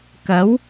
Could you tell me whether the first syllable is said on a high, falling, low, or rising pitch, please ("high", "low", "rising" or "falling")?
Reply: rising